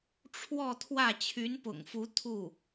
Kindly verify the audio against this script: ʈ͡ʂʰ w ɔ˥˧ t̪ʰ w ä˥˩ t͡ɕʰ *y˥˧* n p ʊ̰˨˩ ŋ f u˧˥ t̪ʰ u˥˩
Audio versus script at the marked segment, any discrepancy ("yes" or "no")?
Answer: yes